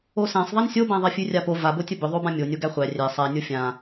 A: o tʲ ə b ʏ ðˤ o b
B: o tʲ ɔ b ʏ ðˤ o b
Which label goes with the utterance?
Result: A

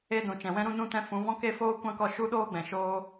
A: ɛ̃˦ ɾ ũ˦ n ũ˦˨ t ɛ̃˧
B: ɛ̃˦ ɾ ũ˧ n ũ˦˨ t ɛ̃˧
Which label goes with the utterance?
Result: B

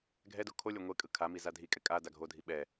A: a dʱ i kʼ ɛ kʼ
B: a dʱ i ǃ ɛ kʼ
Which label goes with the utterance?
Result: A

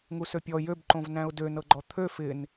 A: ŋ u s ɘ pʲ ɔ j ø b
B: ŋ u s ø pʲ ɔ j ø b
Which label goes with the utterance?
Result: B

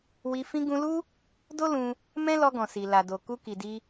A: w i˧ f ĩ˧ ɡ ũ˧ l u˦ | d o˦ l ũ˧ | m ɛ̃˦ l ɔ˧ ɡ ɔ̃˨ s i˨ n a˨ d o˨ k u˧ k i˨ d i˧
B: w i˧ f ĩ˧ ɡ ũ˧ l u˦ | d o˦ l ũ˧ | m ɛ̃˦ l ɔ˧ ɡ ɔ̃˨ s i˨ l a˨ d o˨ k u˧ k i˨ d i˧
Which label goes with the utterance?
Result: B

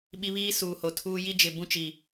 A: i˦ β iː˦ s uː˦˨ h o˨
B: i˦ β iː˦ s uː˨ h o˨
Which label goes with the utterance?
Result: B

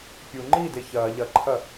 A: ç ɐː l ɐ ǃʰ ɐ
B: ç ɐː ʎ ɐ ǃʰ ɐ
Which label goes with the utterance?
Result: B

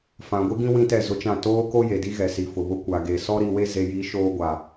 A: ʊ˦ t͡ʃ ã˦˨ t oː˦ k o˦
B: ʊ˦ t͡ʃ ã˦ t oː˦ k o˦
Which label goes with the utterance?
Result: A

